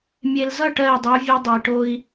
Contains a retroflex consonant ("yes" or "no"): yes